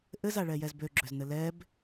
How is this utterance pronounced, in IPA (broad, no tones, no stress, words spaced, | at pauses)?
ʔɘzaɭɛjɛz bøɡ͡ǁøznɘ lɛb